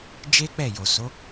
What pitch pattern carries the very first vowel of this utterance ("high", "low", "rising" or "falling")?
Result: high